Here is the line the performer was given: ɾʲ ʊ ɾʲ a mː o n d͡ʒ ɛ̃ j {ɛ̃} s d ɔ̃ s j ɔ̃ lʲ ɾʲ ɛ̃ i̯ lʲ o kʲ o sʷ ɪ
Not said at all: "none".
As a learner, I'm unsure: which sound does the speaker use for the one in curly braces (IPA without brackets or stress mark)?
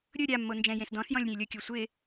ẽ